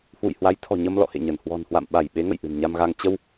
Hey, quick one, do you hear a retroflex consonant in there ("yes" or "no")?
no